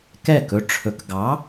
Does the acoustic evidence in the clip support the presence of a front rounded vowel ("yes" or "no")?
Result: no